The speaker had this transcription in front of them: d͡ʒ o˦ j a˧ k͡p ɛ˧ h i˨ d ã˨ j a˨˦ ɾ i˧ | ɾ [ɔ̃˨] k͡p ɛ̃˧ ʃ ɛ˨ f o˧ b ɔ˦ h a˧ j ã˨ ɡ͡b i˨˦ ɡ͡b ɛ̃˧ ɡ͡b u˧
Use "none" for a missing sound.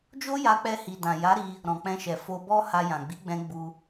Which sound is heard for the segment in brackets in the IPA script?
ɔ̃˨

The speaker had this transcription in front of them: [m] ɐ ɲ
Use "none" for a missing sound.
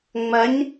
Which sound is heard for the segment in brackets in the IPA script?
ŋ͡m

